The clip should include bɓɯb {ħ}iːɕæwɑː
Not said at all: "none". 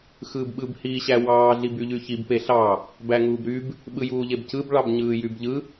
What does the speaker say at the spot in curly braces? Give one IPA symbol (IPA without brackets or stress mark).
h